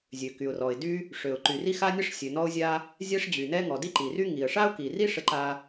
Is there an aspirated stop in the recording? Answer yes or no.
no